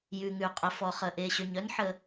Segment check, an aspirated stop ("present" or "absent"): absent